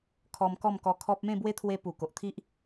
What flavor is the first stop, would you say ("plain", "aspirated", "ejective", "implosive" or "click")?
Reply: aspirated